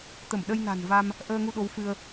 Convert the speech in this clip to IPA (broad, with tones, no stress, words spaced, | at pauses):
t̪ə˧˩mɗə˧jna̤˨˩n va˧m | ʔəː˧ŋu˧ɗo˨˦w fɨ˧ə̯